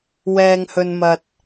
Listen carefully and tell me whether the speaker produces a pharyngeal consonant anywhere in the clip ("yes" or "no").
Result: no